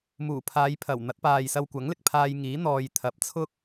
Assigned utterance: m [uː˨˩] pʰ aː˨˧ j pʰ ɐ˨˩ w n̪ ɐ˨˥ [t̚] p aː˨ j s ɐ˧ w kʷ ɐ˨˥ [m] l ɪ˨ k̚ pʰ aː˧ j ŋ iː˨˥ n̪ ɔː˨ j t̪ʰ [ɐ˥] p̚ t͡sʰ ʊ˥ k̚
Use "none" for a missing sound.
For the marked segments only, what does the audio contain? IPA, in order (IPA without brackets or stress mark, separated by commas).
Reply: uː˨˩, t̚, ŋ, ɐ˨˥